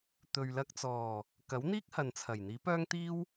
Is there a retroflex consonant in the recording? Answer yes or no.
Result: no